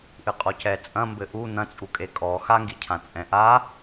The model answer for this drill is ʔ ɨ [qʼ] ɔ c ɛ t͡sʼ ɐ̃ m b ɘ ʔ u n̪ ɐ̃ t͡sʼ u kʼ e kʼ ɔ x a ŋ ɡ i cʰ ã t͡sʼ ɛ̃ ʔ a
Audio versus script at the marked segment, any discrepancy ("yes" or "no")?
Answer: no